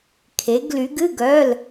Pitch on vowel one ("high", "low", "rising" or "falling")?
rising